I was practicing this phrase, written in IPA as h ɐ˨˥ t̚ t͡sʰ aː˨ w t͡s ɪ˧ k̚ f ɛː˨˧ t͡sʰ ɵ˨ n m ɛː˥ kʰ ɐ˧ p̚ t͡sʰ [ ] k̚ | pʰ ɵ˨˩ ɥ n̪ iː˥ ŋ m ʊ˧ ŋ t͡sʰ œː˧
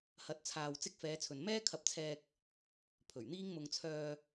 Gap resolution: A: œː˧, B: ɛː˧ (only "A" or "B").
B